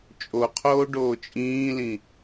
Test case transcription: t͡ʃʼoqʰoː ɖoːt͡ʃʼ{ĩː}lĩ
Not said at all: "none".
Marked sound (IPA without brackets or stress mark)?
ĩː